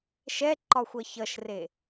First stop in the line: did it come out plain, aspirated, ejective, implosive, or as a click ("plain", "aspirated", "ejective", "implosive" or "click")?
click